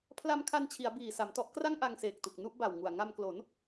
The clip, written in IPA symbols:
pʰla˧mkʰa˧nt͡ɕʰi˩˦a̯ biː˨˩sa˩˦mtɔ˦˥ʔkra˥˩ŋ ʔa˧ŋseː˨˩k̚tu˨˩k̚ nu˥˩ʔba˨˩wŋu˨˩a̯ ŋa˧mklo˩˦n

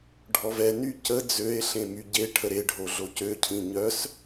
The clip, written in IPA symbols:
ɖʱɔvɛny cə d͡zøe̯ɬẽ myɟeʈʰə ɾeɖʱo ɮocøcʰĩ ɲœs

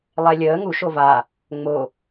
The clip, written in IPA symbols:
lˠɛlʲəː ŋu ʃova | ŋ͡mo

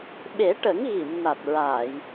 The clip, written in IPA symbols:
ɓe˨˩˦ʈə˨˩˦ŋ ɣi˨˩˨mna˨˩t̚ɹaː˨˩˨j

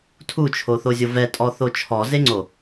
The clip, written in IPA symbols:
tʰut͡ʃʰoθozʲo vɛtʼɔθo t͡ʃʰɔzeŋ͡ǀo

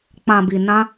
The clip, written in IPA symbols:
k͡pã˨bi˨nã˧

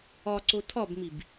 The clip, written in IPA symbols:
ɒǀo tʰɒbmib

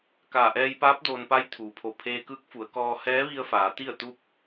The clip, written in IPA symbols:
kaː˧˩ʔɛː˧jpaː˧˥p̚ doː˧npa˧˥jt̪ʰuː˩pʰo˧˩ pʰeː˧kɯː˧˥k̚fu˩˧ə̯kɔː˧ hɛː˧˥ʋi˧ə̯faː˩˧ t̪i˥˨ə̯t̪u˥˨p̚

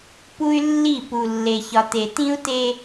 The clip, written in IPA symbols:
pu˦y̯lːi˦˨ pu˨ lːe˨çɒ˨te˨ tĩ˦u̯te˦

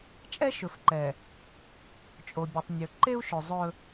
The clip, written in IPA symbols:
t͡ʃʼɛ˦ʃɵ˨fǃɛ˨ | t͡ʃʼo˨bʲɵ˨tˤ nʲɵ˨ǃe˦u̯ʃɵ˨ zˤɵ˦

